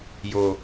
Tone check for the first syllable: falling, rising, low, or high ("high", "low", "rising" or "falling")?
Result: low